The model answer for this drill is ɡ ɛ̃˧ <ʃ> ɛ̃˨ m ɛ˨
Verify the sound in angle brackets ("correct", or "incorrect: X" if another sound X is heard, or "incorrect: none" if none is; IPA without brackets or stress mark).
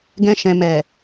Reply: correct